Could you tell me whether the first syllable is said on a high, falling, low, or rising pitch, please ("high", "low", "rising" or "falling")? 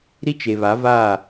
high